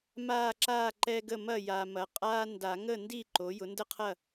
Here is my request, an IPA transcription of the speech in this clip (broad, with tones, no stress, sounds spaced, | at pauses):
m aː˥˨ ǁ aː˥˨ ǃ ɛ˦ ɡ ə˥˨ m ɐ˥˨ j a˨ m ɐ˨ qʼ aː˦ n d a˨˩˦ ŋ ə˥˨ n d i˥˨ ǃ o˩˥ j ʊ˩˥ n d ə˥˨ qʰ ɐ˥˨